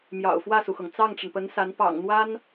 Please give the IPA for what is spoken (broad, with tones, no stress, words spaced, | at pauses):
mjɑ̰˨˩ʊ̯fwä˥˩su˩xɤ˩ŋ t͡sɑ˥˩ŋʈ͡ʂə˩npə˧˥nsa˧˥n pɑ̰˨˩ŋn̪wa˥n